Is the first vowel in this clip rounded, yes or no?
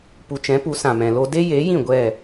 yes